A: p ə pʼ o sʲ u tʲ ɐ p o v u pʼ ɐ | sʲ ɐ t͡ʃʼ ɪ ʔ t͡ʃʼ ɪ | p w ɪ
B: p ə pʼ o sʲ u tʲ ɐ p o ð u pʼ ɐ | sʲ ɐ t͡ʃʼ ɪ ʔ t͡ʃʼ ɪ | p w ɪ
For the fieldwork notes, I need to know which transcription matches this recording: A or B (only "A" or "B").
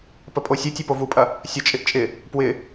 A